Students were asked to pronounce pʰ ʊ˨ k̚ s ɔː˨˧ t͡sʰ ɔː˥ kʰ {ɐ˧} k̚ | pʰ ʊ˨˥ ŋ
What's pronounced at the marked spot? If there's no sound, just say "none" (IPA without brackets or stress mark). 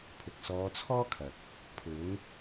ɐ˨